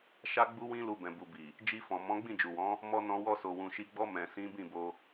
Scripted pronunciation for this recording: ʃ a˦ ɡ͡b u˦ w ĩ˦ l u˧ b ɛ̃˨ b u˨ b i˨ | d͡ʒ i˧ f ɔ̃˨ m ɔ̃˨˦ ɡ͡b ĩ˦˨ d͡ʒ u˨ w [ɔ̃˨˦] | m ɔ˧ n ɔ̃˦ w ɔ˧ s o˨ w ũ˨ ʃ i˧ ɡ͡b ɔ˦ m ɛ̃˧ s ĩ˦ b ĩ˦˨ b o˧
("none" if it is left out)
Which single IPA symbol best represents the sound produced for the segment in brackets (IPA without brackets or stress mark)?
ɔ̃˨˦